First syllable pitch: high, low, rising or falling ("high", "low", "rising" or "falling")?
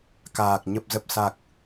low